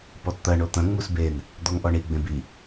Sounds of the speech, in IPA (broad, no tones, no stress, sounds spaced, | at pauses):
p ɔ t t̪ ɐ ɳ o t̪ ɐ̃ ŋ͡m u s b e n | d̪ ɔ ŋ ʔ ɔ ɳ i ɡ͡b ẽ b i